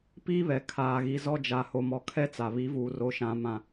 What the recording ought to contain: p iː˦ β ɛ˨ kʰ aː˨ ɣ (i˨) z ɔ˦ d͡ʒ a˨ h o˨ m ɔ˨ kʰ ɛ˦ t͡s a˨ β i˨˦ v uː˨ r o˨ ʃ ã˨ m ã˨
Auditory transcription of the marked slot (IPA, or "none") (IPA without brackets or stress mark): i˨